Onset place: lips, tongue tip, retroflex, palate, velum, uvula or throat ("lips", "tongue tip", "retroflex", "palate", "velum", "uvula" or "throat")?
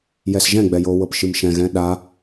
palate